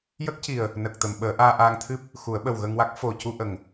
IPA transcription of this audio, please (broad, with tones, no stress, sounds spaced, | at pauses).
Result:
j ə˦˥ k̚ c i˨˩ ə̯ | n ə˨˩ k̚ t̪ ə˨˩˨ m ɓ əː˨˩˦ ʔ aː˧ ʔ aː˧ ŋ t̪ʰ ɨ˦˥ p̚ | x u˨˩˦ ə̯ ɓ ə˨˩ w ɣ ə˧ ŋ w a˦˥ k̚ f o˨˩ c u˧ ʔ ə˨˩ ŋ